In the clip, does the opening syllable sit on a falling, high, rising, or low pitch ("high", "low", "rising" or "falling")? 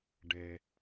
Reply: low